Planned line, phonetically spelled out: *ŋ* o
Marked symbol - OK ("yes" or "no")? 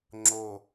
no